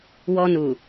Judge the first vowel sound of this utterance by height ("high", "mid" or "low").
mid